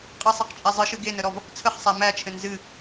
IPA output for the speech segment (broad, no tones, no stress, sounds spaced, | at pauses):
qʼ ɨ sˤ ɛ q t͡ʃʼ æ zˤ ɨ ʃ ɨ ɡ e n ə ɾ ɔ v | t͡sʰ ə χ sˤ æ m æ t͡ʃʰ ɘ n z ɨ